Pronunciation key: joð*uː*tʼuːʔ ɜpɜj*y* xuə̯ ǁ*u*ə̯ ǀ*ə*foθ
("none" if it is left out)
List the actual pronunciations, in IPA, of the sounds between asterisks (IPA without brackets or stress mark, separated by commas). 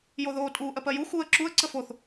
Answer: oː, u, u, ə